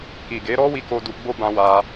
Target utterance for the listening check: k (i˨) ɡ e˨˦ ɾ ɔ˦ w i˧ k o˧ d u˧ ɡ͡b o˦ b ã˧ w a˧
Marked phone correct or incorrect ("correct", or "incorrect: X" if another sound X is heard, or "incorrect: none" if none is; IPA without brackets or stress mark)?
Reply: correct